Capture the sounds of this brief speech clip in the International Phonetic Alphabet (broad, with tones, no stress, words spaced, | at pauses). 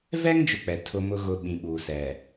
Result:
vɛ˦ŋ d͡ʒʊ˦k͡pɛ˨ tʰʊ˨ mʊ˨ɣʊ˨ ɓĩ˨ɓuː˨ sɛ˨